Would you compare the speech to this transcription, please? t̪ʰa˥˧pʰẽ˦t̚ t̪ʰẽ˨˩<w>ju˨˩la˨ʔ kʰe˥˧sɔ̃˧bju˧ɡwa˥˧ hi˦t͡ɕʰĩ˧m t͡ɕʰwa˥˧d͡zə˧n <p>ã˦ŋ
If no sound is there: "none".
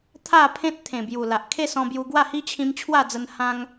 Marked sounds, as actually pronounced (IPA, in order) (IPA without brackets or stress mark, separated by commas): b, h